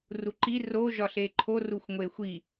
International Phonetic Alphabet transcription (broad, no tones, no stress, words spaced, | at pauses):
ruǃi ro ʒɒɬeǃʰo ruxʷŋʷexʷi